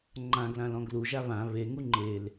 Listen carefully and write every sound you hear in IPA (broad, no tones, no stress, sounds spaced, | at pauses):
ŋ͡ǃ ã ɡ l ã l ɔ̃ ɡ l u ʒ a β ã β e ŋ u ŋ͡ǃ e l